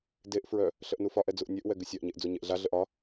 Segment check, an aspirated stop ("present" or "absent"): absent